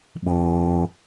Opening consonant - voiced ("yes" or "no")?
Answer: yes